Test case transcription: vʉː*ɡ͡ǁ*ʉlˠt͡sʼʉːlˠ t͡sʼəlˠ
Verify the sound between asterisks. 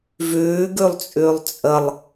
incorrect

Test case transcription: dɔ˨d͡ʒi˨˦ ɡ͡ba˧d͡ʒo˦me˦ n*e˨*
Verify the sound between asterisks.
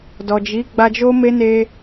incorrect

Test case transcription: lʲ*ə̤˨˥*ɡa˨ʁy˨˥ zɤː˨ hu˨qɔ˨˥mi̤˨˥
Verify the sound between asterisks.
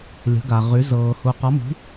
correct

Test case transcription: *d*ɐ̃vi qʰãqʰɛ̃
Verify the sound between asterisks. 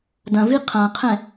correct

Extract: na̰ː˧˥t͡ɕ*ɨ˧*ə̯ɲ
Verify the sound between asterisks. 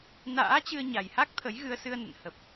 correct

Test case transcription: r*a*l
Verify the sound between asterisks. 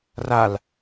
correct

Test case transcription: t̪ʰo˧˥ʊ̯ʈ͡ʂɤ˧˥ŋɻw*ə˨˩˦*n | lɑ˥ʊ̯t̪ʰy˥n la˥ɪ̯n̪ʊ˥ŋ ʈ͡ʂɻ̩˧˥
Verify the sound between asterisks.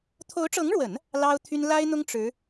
correct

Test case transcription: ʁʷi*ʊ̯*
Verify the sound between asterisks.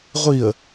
incorrect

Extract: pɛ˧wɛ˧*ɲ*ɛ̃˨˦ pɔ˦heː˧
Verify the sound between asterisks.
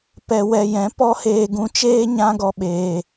incorrect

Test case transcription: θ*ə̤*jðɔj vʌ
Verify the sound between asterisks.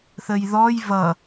incorrect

